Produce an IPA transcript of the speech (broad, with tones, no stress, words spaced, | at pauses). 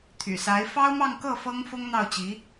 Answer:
t̪ʰy̰˨˩sa˧˥ɪ̯ fɑ˥ʊ̯mɑ˥˧ŋkɤ˥˩ fɤ˥ŋfʊ˥ŋ n̪ɑ˥˩ʊ̯t͡ɕi˧˥